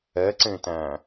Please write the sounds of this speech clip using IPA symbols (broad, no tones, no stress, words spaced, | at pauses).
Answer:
ɛǀẽtæ̃